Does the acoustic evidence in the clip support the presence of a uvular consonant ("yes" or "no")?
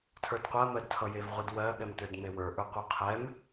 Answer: yes